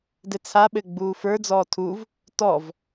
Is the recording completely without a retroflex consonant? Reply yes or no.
yes